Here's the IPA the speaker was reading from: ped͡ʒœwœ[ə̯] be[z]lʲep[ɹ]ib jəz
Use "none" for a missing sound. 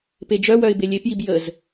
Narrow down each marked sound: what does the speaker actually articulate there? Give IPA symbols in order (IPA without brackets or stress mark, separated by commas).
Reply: ɪ̯, none, j